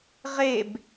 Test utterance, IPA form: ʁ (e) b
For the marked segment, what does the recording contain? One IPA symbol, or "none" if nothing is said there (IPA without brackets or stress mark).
e